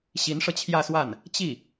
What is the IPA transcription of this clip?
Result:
ɕ i˧˥ n ʂ ɤ˧ t͡ɕʰ j ä˥˧ s w a˥˩ n | t͡ɕ i˥˩

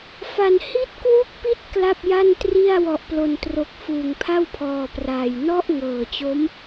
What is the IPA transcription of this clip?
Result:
f a˨˩ n h i˦˥ t̚ k w u˦˥ k̚ p i˦˥ t̚ k l a˥˩ p̚ j a˥˩ n t r i˥˩ a̯ w ɔ˨˩ ʔ p l o˨˩ n t r o˨˩ k̚ f uː˨˩ ŋ pʰ a˥˩ w pʰ ɔː˨˩ p r aː˨˩ j n ɔ˥˩ ʔ ŋ ɤː˨˩ t͡ɕ o˦˥ m

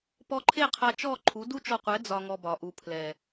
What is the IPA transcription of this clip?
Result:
p ɔ˧ ǃʰ e˦˨ qʰ a˧ t͡ʃ ɔ˦˨ ǃʰ u˨˦ d u˦ t͡ʃ ɔ˧ qʷ ɛ˨˦ d͡z ɒ˧ ŋ ɔ˧ b ɒ˨ ʔ u˨ pʰ l ɛ˨

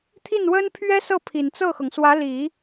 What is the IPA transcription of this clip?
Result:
t̪ʰ i˥˩ n w ə˥ n pʰ ɥ ɛ˥ s ɤ˥˩ pʰ i˨˩ n t͡s ɤ˥˩ x ɤ˩ ŋ s w ä˧˥ l i˨˩˦

